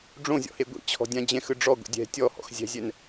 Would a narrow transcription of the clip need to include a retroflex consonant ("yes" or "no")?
yes